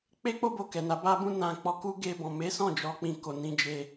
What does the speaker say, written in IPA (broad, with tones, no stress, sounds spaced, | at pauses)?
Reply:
k͡p e˦ k͡p o˦ b o˧ k ɛ˨ n a˨˦ b a˦ b ũ˦ n ã˧ k͡p ɔ˧ k u˦ ɡ e˧ b ɔ̃˨ m e˨˦ s ɔ̃˦˨ d͡ʒ ɔ˨˦ k͡p ĩ˧ k o˨ n ĩ˧ d͡ʒ e˧